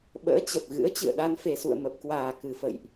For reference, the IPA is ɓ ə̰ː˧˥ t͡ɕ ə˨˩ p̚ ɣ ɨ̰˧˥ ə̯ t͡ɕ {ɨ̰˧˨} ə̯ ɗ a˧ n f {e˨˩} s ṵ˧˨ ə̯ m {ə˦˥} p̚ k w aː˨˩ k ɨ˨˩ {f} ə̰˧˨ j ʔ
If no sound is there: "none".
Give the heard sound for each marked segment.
ɨ̰˧˨, e˨˩, ə˨˩, f

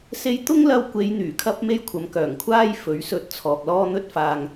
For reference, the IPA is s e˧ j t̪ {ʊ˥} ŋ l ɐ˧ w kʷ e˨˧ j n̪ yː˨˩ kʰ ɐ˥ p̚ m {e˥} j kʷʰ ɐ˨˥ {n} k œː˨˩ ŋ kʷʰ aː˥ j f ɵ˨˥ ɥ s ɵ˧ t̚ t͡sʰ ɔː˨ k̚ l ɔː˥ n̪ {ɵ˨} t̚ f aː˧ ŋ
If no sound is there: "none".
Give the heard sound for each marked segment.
ʊ˥, e˥, m, ɵ˥

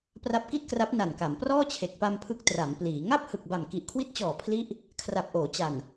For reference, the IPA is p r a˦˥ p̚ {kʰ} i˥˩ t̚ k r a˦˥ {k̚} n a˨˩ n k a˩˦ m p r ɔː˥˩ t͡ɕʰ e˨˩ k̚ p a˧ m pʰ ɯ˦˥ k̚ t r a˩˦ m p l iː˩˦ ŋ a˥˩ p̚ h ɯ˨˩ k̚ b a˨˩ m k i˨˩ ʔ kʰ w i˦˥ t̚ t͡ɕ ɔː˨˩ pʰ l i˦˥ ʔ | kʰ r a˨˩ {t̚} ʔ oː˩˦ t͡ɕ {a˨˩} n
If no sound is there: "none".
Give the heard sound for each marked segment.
k, p̚, p̚, a˨˩

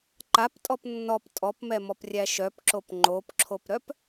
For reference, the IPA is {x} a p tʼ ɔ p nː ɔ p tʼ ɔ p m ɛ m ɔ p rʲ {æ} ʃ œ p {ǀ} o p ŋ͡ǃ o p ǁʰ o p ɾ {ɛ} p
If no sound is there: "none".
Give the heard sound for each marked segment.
ǃ, æ, ǁ, œ

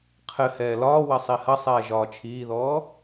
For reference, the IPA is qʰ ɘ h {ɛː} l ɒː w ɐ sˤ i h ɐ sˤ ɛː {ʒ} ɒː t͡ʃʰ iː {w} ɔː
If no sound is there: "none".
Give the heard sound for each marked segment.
ɛː, ʒ, ð

